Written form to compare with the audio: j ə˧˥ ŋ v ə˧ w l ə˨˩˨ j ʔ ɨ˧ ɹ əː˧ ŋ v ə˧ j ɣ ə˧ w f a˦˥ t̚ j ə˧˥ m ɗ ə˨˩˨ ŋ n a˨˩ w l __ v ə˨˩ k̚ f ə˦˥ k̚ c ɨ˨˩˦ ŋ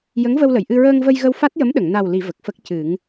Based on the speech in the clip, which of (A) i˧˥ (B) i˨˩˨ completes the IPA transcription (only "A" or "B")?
B